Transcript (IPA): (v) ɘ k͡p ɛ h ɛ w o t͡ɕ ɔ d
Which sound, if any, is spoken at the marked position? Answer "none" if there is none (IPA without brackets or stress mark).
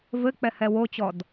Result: v